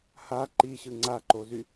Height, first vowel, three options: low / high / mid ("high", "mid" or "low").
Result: low